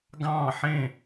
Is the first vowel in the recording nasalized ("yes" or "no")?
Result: yes